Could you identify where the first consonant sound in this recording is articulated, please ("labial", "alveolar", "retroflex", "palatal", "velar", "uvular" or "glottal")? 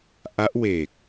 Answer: glottal